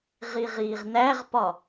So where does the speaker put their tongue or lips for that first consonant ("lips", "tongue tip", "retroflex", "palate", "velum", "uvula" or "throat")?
uvula